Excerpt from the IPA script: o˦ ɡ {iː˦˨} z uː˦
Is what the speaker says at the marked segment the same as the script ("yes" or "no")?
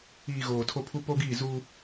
yes